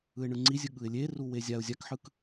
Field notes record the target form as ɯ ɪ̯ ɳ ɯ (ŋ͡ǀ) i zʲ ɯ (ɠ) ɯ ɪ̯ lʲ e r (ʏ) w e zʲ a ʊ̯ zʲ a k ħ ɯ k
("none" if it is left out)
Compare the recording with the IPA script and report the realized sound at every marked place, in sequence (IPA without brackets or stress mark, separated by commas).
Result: ŋ͡ǀ, ɠ, u